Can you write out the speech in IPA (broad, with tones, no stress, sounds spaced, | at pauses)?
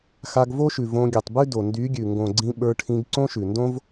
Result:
x a˧ ɡ v o˦ ʃ ʉ˨ v õ˧ ɡʲ ʉ˨ tˤ b ʉ˦ d o˨ n d y˨˦ ɡʲ ʉ˨ ŋ ɡ õ˨ ɡ͡ǀ ĩ˧ ɓ ə˞˧ ʈʰ ĩ˧ ɡ ǀ õ˦ ʃ ʉ˨ n d õ˦ v